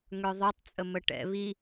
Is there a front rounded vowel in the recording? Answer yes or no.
yes